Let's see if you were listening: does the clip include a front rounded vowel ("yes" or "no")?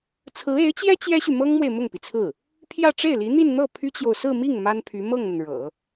yes